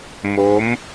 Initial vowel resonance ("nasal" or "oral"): oral